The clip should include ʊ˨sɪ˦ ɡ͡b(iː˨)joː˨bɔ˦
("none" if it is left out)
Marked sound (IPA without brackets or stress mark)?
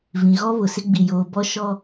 i˨